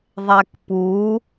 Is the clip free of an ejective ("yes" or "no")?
yes